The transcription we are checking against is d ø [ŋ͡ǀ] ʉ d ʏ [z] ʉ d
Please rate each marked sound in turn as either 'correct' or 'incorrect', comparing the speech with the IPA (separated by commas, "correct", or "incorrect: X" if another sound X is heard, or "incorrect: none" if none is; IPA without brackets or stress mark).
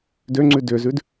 correct, correct